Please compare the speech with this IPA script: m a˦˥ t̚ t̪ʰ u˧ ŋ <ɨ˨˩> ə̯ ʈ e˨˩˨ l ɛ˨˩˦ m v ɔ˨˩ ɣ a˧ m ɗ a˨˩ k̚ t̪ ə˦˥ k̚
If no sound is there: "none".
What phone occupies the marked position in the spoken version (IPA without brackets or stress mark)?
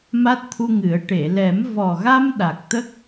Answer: ɨ˨˩˦